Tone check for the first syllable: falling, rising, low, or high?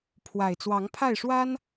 low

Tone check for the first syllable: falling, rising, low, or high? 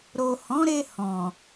low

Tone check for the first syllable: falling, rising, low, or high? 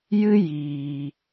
high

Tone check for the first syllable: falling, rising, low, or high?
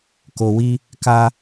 low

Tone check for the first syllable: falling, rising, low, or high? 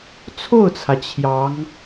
falling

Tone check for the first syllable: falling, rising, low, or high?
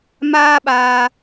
high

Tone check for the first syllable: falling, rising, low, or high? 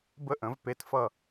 high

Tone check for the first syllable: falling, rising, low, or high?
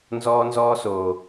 high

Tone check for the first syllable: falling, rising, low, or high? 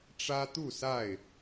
high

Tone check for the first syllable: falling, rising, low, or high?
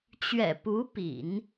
low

